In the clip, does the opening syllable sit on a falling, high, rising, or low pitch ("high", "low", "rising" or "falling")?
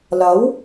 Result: rising